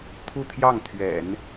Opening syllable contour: falling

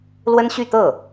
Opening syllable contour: high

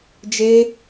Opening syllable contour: high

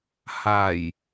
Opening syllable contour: low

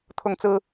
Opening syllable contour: high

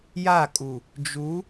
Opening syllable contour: falling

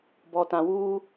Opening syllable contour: low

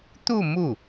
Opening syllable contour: falling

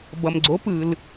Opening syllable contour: low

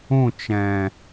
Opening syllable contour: falling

